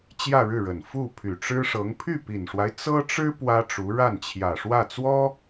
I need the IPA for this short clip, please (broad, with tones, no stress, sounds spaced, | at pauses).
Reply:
t͡ɕ j ä˥˧ ɻ ɻ̩˥˩ ɻ ə˨˩ n f u˥˩ pʰ y˨˩ ʈ͡ʂ ɻ̩˥ ʂ ɤ˧˥ ŋ pʰ y˥˩ p i˨˩ n ʂ w a˦ ɪ̯ t͡s ɤ˥ ʈ͡ʂ ɻ̩˥ p w ä˥ ʈ͡ʂ u˧˥ ɻ a˥˩ n t͡ɕʰ j ä˨˩ ʂ w ä˥˩ t͡s w ɔ˥